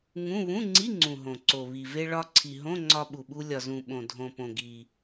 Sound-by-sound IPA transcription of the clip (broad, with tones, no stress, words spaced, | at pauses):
ŋũ˧˥˧ βũ˧˥˧ŋ͡ǀi˧˥˧ŋ͡ǀũ˩ ɦõ˩ǀo˩ βi˩ve˧ ɭɒ˧ǀʰi˩ɦõ˧˥˧ ŋ͡ǀɒ˧ɓu˩ɓu˧ lʲɒ˩zũ˩ ɓõ˩dʱõ˩ põ˩ɡi˩